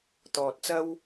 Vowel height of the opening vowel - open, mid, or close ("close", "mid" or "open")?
mid